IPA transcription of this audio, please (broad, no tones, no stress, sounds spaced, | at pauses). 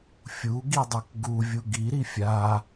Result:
fʲ u ɡ i dˤ u k ɡ u vʲ u ɡ i ɾ i fʲ a